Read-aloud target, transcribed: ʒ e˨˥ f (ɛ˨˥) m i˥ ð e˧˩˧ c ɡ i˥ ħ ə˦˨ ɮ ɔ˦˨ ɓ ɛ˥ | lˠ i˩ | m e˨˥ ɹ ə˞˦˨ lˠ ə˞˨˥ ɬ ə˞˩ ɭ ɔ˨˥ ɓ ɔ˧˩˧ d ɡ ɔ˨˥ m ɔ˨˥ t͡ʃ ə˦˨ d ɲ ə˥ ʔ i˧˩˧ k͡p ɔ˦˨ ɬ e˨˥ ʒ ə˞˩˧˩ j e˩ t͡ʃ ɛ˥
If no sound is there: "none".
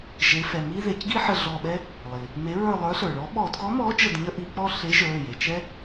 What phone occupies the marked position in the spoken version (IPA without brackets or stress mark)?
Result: ɛ˩˧˩